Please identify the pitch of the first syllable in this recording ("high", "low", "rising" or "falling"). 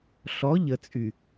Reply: rising